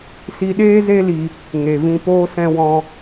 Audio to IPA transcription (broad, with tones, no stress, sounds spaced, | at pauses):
s i˧ ɗ eː˦ z e˦ l i˧ | ŋ e˧ v ĩ˦ p oː˦ s ɛ̃˦ w ɔ̃˦